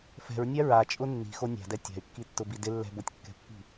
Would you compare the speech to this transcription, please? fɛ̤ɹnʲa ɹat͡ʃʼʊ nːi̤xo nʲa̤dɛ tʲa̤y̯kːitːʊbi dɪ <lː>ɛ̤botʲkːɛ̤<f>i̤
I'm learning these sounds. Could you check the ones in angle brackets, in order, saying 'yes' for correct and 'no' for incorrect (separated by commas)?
yes, no